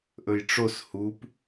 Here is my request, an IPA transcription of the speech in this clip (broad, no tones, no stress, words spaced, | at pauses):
ʔɵjʈ͡ʂos hup